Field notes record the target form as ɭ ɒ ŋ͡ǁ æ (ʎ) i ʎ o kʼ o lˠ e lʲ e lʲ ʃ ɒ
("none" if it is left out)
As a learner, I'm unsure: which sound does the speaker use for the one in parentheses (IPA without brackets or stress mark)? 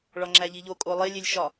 ʎ